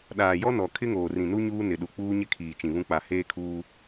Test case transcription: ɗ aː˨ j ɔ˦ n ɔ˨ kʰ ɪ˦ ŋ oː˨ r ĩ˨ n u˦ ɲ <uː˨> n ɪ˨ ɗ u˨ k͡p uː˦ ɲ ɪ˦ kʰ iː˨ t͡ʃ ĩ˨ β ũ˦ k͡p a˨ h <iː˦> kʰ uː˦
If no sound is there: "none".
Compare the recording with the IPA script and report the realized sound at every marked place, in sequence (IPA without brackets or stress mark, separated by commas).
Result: uː˦, eː˦